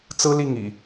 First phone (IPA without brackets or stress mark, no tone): t͡s